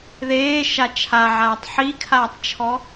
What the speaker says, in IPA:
ð eː ʃ a t͡ʃʰ a ʕ aː tˤ ħ i kʰ aː tˤ t͡ʃʰ ɔ

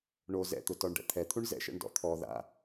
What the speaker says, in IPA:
ɳ o z ɛ̰ t̪ ʊ t ɔ ɳ ɖ ɛ̰ t̪ʰ ɛ t̪ʰ u ɳ z ɛ̰ ʃ ɛ̰ ɳ d ɔ̰ t̪ʰ ɔ ð a̰

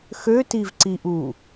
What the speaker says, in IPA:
x ø t i v ǀ i ʔ u

